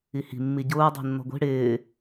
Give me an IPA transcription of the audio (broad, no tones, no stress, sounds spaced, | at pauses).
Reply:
i h i̤ mː i ɟ ʊː dˤ i̤ nː ɔ̤ ɡʷ i̤ ɽ ɪː